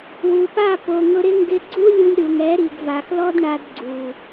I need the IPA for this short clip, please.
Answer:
w u˨ p a˦˨ p o˨ ŋ ʊ˧ ɾ ɪ˦ ŋ ɡ ɪ˧ ɡ͡ǀ u˦ lʲ u˧ lʲ ɾ u˨ ŋ ɛ˨˦ ɾ i˨ ɡ v a˨ x l ɔ˦ d ɳ a˧ d ɡ͡ǀ u˨

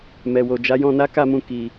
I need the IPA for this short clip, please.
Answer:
m ɛ˨ w o˨ d͡ʒ a˨˦ j ɔ̃˧ n a˦ k a˦˨ m ũ˧ k i˨

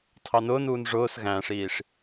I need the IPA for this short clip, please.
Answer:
tʰ ɑ n ʊː n uː n ʐ ʊː s ɣ æ̃ː ʂ iː ʂ

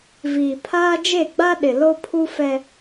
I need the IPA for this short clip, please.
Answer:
v iː˨ pʰ aː˦ d͡ʒ e˦˨ ɡ͡b a˦ ɗ ɪ˨ l o˦ pʰ u˦ f ɛ˦

